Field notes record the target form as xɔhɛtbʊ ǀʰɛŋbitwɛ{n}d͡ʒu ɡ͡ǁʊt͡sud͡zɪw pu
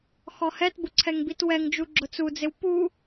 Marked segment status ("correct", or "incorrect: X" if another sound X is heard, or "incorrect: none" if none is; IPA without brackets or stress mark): incorrect: ŋ